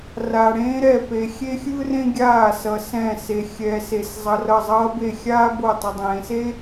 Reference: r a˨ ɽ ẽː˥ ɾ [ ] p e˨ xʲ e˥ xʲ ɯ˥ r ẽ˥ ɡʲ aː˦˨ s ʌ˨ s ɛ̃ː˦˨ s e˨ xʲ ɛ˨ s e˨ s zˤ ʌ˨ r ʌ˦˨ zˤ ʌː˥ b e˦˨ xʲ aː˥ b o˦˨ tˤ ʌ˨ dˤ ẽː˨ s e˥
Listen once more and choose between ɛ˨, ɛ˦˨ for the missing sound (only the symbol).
ɛ˦˨